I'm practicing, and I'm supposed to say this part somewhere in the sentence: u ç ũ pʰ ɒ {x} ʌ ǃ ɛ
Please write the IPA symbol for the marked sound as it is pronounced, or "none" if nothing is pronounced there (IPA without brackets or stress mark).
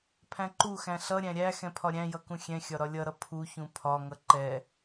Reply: ŋ